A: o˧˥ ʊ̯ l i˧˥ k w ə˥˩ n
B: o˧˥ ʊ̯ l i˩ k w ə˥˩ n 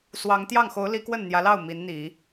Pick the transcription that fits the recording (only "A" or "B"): A